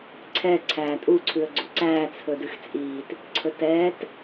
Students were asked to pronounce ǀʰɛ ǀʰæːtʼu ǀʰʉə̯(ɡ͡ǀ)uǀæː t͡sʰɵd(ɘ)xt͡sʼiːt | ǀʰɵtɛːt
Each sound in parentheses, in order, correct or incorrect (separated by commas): correct, incorrect